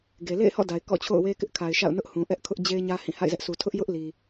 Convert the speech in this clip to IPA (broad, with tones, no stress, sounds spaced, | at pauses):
ɡ e˨ l ḛ˦˨ ɪ̯ h ɔ̰˦˨ d a˨ ɪ̯ k ɔ̰˦˨ t͡ɕʰ o̰˦˨ ʊ̯ w e˦ k ɪ˦ ʔ kʰ a˨ ɪ̯ ʃ a̰˦˨ ʊ̯ n ʊ˦ ʔ h ũ˨ ʔ ɛ˦ ʔ kʰ ʊ˦ ʔ d͡ʑ e˦ ɪ̯ ɲ ä˦ h ĩ˦˨ h a̰˦˨ ɪ̯ z ɛ˦ ʔ sʰ u˨ tʰ ʊ˦ ʔ j ʊ˦ ʔ l i˨